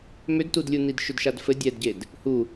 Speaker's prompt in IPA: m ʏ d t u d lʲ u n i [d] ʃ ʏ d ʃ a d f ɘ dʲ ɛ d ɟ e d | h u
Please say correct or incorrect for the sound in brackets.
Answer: correct